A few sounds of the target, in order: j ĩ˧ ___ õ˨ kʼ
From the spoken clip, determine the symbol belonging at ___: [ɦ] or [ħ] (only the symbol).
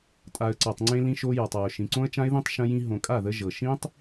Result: ɦ